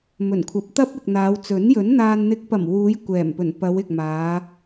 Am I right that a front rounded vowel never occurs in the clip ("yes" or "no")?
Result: yes